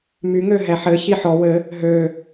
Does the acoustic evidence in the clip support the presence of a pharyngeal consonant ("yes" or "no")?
yes